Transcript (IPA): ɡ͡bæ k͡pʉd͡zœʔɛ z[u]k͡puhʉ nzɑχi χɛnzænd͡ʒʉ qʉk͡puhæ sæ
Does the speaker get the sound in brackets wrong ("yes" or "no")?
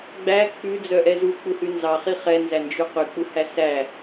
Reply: no